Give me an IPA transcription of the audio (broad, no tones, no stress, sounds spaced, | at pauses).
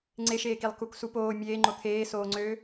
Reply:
ŋ͡ǀ e ʃ eː k i lˠ k u k s u p oː mʲ eː ŋ͡ǃ o t̪ʰ eː s oː ŋ͡ǀ øː